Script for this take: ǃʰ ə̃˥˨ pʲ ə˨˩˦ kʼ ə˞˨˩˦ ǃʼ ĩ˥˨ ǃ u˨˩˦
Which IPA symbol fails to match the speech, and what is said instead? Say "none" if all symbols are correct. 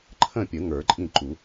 kʼ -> ŋ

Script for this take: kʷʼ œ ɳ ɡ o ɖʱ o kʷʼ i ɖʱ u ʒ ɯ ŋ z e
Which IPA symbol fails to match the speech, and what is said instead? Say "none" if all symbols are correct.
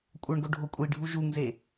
ɯ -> u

